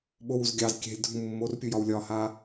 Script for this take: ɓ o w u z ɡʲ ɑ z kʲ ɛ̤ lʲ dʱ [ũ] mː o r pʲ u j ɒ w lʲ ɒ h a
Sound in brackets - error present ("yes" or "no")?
no